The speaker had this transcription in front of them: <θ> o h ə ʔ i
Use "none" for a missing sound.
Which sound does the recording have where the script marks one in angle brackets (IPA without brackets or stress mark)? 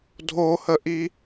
dʱ